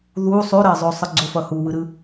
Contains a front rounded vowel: no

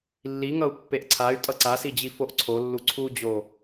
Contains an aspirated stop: yes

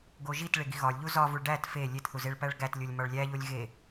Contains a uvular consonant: no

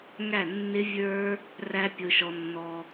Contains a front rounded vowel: no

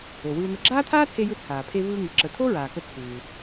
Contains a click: yes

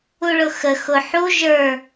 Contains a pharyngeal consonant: yes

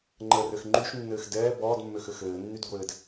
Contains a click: yes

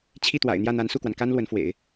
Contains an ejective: no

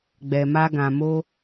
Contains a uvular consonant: no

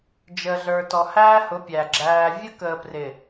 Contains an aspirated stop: no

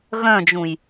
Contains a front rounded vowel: yes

